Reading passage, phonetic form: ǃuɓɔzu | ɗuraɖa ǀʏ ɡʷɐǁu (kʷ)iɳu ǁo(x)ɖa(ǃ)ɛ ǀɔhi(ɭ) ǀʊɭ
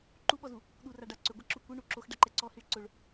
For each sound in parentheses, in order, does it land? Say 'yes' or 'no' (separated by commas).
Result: yes, yes, yes, yes